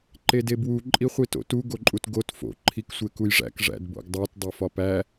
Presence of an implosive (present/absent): absent